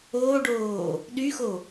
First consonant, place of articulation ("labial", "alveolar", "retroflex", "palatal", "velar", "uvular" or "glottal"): retroflex